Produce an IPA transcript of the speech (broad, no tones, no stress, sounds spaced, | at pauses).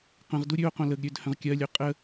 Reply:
q ə̃ ʁ d u ɾʲ ø o̯ q õ l ə ɡ ɾʲ ø d h ə̃ ʁ kʲ ɜ lʲ ø qʼ ə